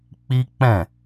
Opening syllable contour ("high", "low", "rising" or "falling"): high